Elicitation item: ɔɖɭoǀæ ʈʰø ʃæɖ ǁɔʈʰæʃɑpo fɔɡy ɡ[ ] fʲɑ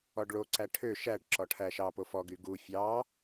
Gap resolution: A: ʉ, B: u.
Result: B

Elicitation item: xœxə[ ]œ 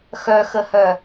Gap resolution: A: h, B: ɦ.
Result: A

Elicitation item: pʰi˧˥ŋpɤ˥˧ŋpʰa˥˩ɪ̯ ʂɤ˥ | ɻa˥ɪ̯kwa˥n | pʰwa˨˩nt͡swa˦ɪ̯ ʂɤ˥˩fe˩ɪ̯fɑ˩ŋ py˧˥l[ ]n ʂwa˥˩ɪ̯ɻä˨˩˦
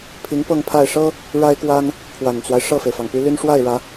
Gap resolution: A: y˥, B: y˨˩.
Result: A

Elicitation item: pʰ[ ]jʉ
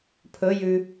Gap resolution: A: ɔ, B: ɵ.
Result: B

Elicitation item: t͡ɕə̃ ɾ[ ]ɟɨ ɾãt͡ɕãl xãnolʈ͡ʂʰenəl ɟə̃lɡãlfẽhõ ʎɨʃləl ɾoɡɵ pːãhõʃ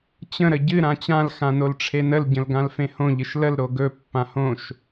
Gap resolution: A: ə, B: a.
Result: A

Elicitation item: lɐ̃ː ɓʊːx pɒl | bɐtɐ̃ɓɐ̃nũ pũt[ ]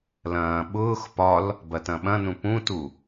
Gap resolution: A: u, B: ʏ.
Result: A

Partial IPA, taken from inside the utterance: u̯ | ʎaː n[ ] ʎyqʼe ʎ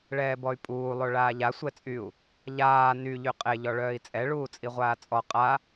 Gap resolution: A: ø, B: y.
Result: B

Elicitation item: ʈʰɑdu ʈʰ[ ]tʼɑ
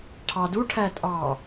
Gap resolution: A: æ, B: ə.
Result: A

